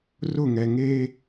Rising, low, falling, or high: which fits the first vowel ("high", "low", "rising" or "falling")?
falling